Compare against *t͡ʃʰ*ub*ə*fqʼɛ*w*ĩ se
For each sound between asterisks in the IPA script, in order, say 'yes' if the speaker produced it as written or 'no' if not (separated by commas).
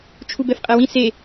yes, no, yes